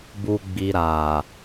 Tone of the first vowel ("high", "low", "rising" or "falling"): low